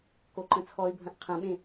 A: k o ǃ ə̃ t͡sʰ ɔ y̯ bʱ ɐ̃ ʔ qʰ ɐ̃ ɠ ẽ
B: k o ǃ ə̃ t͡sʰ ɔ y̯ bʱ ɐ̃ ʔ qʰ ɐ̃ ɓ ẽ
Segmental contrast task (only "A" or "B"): B